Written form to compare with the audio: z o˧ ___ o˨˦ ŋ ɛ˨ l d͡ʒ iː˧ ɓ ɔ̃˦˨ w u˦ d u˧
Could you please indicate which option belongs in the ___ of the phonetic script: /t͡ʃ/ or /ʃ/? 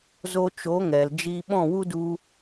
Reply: t͡ʃ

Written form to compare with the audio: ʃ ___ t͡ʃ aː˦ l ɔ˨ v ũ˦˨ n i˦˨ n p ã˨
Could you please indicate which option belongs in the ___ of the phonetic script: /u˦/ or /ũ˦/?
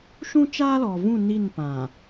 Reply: ũ˦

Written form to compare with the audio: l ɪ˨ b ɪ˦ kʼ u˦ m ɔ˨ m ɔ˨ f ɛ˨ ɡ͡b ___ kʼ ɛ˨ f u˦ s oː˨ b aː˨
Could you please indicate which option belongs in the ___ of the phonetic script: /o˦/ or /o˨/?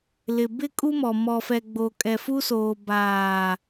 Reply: o˨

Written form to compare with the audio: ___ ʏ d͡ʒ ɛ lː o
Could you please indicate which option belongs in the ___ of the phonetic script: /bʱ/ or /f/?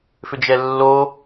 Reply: f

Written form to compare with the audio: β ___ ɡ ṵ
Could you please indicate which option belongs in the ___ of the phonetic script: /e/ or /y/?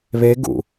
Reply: e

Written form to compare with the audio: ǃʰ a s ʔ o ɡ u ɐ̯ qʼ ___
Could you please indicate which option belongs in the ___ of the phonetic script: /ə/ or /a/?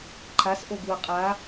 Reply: a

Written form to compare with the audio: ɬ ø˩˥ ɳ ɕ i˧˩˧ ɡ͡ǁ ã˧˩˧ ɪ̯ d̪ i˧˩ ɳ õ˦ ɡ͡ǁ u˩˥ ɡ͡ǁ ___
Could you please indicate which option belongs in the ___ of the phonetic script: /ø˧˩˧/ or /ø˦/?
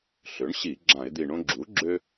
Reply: ø˦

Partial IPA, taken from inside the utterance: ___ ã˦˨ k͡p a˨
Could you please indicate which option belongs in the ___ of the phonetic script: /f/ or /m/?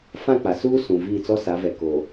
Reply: f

